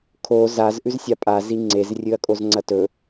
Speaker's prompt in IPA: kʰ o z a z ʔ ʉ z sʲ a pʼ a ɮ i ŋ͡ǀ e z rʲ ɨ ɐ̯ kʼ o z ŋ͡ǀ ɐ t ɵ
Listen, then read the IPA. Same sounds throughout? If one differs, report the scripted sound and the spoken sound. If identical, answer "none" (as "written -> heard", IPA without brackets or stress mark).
ɮ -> z